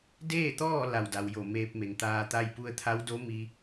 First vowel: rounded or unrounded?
unrounded